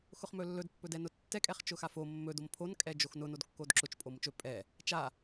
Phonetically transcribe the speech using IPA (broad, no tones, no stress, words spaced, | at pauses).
xʊχmɵlːɵd pːɵdɛnʊtːɛ kʼɛχt͡ʃʊxafo mːɵ dompʰon kʼɛd͡ʒoxnʊ nodkːodǁʊt͡ʃ pʼomʊt͡ʃɵ pʼɛ | t͡ʃa